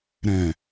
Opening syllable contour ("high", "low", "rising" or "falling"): low